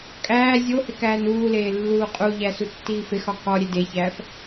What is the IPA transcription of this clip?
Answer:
kʼ æː zʲ o h e k æː n uː l eː lː uː qʼ u ʎ æ s u tː iː f e x ɒ k ɒ ɾʲ e d e ç æː f

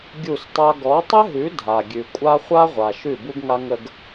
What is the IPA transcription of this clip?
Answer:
ɡʲ u˦˨ s tˤ a˦ ɡ ɔ˨˦ tˤ ɘ˦ ɦ ʉ˨˦ dʱ a˨ ɡʲ ʉ˨ kʷʼ a˦ χʷ a˦ ʁʷ a˨ ʃ ʉ˦˨ b u˦ ɡ ŋ a˦ ŋ ə˦ ɡ

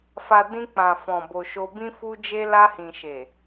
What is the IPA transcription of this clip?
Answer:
f a˨ d ĩ˧ k͡p ã˨ f ɔ̃˨ b o˨ ʃ o˧ b ĩ˦ f u˧ d͡ʒ e˧ l a˧ h ĩ˨ ʃ e˨

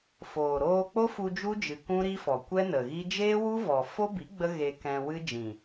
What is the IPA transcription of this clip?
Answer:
f oː˨ ɾ oː˧ k͡p o˦ f u˧ d͡ʒ u˦ d͡ʒ ɨ˨ k ũ˦ ɾ i˦ f ɔ˨ kʷ ɛ˦ n ə˨ ɣ i˦ d͡ʒ eː˦ w u˦ v ɔ˨ f o˦ b i˨˦ ɡ͡b ə˦ ɣ e˧ k ɛ̃˧ w ɨ˦ d͡ʒ ĩ˨

